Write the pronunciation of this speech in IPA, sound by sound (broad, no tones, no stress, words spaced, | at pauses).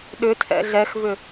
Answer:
ɗʏtʰɛ̰ ɮɛxvʏ